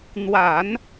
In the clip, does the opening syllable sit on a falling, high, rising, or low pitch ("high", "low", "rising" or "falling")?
low